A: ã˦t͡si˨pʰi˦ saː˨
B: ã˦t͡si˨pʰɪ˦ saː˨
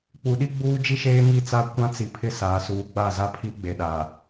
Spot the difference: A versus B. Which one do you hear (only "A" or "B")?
B